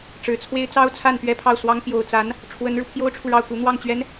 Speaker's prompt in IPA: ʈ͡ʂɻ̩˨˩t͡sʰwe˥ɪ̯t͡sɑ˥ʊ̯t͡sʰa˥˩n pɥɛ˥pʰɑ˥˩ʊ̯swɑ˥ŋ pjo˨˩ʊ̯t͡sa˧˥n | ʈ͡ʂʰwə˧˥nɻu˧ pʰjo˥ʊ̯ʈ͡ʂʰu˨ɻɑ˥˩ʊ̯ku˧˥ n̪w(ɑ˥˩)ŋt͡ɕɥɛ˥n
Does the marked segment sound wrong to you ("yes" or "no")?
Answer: no